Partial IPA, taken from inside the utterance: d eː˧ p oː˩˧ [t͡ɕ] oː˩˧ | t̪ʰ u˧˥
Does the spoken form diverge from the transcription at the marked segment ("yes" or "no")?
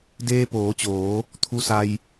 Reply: no